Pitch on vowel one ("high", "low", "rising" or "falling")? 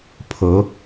rising